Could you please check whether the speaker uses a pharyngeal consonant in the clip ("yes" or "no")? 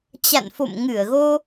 no